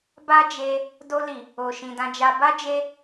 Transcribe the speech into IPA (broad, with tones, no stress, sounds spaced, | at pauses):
b a˦ d͡ʒ e˧ | d o˧ l i˨ | o˨ ʃ ĩ˨ d ã˧ d͡ʒ a˧ b a˦ d͡ʒ e˦